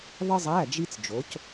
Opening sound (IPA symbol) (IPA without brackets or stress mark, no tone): ðˤ